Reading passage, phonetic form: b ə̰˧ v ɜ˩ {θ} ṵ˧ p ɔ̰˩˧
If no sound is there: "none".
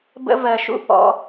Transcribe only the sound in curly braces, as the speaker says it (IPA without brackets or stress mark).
ʃ